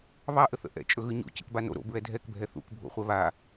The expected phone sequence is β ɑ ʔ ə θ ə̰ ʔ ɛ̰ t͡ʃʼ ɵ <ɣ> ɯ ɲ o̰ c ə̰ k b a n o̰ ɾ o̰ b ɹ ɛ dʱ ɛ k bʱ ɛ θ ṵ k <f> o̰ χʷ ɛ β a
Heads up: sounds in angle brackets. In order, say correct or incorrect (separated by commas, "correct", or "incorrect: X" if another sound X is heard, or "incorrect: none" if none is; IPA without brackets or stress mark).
correct, incorrect: bʱ